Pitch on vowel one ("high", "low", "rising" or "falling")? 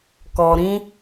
low